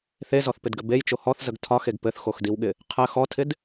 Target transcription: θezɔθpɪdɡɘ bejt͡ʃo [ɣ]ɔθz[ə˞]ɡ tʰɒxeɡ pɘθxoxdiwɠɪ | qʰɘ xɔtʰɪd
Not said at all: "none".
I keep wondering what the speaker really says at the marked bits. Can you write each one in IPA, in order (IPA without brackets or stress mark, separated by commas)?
h, ə